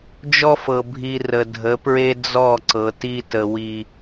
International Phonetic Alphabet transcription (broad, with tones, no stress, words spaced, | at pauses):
d͡ʒɔ˦fɤ˨ bʱi˨ rə˨dʱə˨˦pɹe˦ d͡zɔ˦˨ǀɤ˨ ti˦tə˨ wi˦